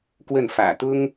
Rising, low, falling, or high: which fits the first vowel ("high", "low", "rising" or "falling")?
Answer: falling